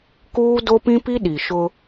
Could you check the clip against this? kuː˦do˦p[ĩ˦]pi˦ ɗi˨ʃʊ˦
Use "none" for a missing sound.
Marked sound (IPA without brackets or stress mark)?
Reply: ĩ˦